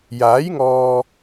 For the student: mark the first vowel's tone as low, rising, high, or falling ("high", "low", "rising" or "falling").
rising